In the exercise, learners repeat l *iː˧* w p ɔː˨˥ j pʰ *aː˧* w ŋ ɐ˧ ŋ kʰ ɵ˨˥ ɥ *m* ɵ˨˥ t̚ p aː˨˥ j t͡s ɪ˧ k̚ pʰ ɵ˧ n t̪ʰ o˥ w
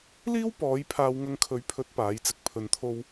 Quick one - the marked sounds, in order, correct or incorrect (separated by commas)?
incorrect, correct, incorrect